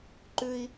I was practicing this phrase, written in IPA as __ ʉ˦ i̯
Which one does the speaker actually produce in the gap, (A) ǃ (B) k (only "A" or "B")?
A